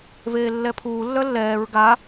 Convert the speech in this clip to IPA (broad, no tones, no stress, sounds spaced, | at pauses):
v eː lː ɛ pʰ uː lː œ lː ɛː ɹ ɡ a